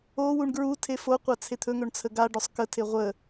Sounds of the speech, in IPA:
owuɳ ɡɹutʰe foqʷa t͡sʰet̪ʰɵŋɵɳ t͡sʰəɡaɖʊsˤ kətʰe ʁʷə

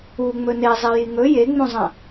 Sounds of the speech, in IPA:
u ŋ͡mɵnezˤi jiŋɵ jeŋ͡mũzˤɐ̃

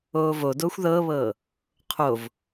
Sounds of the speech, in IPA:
oːvodoːxʷ ðɤːβɤː | qʰov

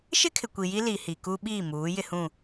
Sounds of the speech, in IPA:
ʃɪ˦kʰɪ˨kʷi˨ ji˦li˨ hi˨kuː˦ ɓiː˦˨ muː˨˦ jɪ˦hũ˦˨

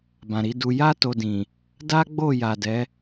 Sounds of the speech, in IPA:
bã˨ɾi˨˦du˧ ja˦ to˧dĩ˨ | da˦ ɡ͡bo˦˨ja˨dɛ˨˦

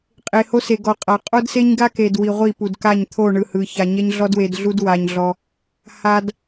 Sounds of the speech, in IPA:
qʼe˨ ho˦se˨ ɡɔ˨qʼa˨ qʼo˦dse˦ɲɡa˦ke˨d wi˨ʁʷi˦˨pu˨dka˦˨ɲ t̪ʰo˦˨ɳɯ˨hɯ˨ça˨ ɲɛ˦ɲɮɔ˦dwe˨dɮu˦d wa˦ɲɮɔ˦ | ha˦d

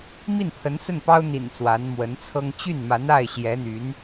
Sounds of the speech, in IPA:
mi˥˩npʰə˧˥nsə˥˩npɑ˥ʊ̯ n̪ḭ˨˩n swa˧˥nmwə˧˥nt͡sʰɤ˥ŋ t͡ɕy˥˩nma˧˥n a˥˩ɪ̯ɕjɛ˧˥n̪y˧˥n

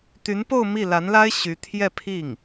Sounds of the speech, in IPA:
t̪y˧˥npo˥˧ʊ̯ mi˥˩ la˧˥nla˥ɪ̯ ɕy˧˥ t̪ʰjɛ˥˧pʰi˥˩ŋ

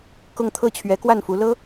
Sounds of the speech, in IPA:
kʊ˥˧ŋ t̪ʰɤ˥˩t͡ɕʰɥɛ˧˥kwa˥˩nfu˧˥ lɤ˥

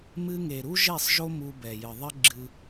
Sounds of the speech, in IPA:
mɨ˧ŋe˨ ɾu˦ʒe˦˨sˤʒo˦ mu˧bɛ˨jɨ˨ðˤɘ˦ ɡ͡ǁɨ˧

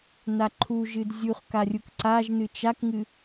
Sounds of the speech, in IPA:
naǃʰuʒɨd zʲuχ karʲukǀaʒnɨ t͡ʃakŋɨ

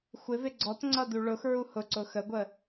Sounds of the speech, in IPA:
xʷɪvɪ ɡ͡ǀɔt ŋ͡ǀʌduɭʊx ɹuhʊǀʊ xəɡʷə

